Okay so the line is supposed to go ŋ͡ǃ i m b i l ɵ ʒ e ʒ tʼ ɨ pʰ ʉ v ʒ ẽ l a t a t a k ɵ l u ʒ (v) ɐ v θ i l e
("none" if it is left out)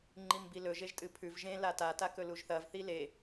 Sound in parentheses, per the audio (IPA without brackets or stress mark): θ